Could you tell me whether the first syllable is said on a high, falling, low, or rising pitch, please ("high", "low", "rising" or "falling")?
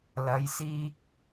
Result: rising